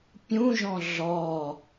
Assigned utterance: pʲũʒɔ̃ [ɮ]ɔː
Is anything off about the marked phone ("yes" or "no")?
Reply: no